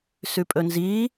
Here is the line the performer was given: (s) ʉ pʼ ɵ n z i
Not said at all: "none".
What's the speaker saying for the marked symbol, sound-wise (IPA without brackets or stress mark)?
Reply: s